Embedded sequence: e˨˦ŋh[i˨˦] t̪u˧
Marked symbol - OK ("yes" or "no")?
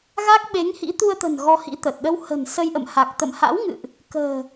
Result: no